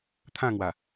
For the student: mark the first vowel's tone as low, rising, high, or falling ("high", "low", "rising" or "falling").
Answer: falling